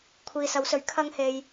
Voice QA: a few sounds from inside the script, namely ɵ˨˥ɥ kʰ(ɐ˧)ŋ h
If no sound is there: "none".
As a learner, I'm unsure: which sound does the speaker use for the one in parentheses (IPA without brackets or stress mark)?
ɐ˥